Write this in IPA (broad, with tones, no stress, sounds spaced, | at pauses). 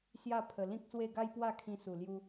s j a˥˧ pʰ ə˨˩ l ĩ˦ k̚ s w e˥˧ ɡ a˦ j p w a˥˧ kʰ ĩ˧ s u˨˩ l j u˦